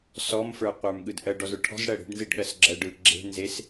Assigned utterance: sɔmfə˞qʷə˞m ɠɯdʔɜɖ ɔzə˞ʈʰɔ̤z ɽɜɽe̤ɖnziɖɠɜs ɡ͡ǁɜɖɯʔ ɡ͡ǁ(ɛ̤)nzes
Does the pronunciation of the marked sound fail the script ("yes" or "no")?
yes